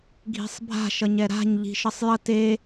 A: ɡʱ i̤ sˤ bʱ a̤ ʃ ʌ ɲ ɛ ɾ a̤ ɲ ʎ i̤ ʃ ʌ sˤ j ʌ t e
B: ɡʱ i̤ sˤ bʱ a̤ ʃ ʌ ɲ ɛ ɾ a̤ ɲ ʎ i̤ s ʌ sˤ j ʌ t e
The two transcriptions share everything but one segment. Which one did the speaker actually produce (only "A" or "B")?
A